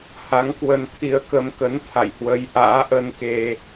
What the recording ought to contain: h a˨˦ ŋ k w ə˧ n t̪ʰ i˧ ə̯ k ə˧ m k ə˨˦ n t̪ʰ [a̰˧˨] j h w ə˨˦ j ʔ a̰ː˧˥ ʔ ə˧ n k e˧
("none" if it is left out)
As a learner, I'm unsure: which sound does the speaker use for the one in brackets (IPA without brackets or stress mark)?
a̰˧˨